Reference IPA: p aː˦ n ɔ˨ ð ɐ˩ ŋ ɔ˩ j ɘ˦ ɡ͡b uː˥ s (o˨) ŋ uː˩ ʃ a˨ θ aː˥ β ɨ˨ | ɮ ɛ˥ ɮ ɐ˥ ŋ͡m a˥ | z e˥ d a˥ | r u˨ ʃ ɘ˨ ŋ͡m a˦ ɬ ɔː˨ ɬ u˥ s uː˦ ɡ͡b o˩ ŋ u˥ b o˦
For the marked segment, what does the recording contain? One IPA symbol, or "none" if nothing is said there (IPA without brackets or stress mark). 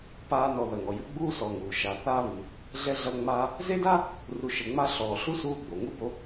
ɔ˨